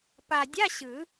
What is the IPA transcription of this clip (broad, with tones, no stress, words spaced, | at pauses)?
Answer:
pa˨˩dʲa˧˥˧ ɕɯ˨˩˦